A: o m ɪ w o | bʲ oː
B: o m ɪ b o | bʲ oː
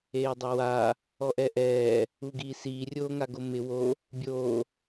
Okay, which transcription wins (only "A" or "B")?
A